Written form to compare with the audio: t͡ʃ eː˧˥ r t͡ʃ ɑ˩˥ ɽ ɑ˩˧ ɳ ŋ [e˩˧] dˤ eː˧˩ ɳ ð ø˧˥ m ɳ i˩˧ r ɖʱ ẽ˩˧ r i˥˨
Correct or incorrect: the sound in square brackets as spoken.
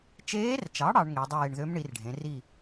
correct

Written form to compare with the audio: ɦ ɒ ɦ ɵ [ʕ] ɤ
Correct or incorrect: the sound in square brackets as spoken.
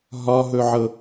correct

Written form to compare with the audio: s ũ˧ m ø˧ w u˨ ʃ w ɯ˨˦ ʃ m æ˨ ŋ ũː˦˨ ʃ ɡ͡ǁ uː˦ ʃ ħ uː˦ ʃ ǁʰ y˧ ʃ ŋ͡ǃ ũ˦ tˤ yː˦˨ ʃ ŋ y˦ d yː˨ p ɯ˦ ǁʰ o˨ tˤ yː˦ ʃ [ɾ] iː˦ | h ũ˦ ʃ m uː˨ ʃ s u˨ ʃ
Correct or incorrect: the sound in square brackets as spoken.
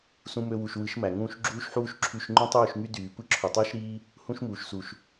correct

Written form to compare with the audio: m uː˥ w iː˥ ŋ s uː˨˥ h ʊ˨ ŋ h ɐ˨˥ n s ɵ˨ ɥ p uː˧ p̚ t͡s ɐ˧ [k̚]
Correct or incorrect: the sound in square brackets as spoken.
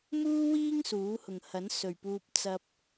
incorrect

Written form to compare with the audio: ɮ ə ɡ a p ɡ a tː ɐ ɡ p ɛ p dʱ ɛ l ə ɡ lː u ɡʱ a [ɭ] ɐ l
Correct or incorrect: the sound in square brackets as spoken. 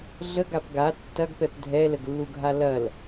incorrect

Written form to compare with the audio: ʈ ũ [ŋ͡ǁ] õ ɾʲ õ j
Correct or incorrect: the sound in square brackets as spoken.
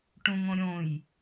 incorrect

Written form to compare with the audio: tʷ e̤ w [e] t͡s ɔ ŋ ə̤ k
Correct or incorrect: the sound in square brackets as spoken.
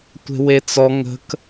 correct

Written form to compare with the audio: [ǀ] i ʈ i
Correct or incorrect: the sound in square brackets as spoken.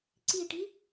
correct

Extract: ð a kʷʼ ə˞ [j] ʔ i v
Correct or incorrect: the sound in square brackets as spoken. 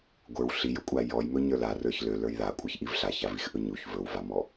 incorrect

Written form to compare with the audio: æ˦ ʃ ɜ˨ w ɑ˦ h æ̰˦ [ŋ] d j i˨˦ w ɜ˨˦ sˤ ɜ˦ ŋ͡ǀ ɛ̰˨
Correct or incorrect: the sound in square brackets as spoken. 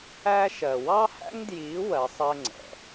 correct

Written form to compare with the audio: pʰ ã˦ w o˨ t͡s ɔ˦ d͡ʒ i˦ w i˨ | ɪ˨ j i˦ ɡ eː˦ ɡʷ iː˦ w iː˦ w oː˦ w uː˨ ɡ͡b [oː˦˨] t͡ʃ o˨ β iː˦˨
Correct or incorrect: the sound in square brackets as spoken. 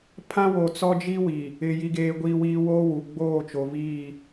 correct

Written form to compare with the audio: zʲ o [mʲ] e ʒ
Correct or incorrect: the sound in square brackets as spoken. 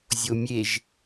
correct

